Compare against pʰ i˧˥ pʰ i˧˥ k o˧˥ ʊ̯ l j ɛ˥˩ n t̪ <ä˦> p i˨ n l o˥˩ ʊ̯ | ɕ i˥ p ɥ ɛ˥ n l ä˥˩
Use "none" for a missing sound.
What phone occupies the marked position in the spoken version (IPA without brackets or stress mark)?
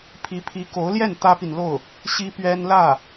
ä˥